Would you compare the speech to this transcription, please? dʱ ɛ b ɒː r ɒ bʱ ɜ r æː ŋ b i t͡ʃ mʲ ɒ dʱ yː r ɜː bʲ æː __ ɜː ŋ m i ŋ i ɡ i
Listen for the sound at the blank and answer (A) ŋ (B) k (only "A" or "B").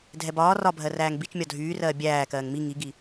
B